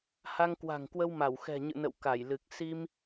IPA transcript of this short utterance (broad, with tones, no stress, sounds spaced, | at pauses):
h a˧ ŋ k w a̤˨˩ ŋ k w ə˧ w m a˧˩ w x ɛ̤˨˩ ɲ ɨ̰˧˨ n ə̰˧˨ w k a˧˩ j l ɨ˨˩ k̚ s i˧ m